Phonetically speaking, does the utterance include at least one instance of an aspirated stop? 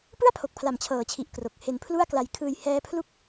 yes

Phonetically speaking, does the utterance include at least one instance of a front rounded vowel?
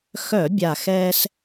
yes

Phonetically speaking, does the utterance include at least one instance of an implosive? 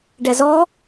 no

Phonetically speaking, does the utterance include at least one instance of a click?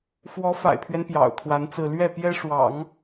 no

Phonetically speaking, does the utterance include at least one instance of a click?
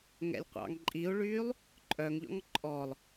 yes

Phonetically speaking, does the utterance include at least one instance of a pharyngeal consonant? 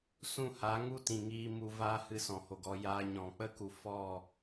no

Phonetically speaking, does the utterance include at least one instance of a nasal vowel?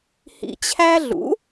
no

